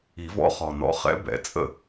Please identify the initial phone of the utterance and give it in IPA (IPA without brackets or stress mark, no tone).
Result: i